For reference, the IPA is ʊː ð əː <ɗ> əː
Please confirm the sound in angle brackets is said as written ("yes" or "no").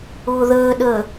yes